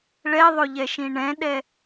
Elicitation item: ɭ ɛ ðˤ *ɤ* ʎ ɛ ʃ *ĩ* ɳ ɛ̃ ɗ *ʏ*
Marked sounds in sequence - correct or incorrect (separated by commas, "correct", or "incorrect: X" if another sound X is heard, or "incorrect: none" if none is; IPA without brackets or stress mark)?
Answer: incorrect: o, correct, incorrect: ɛ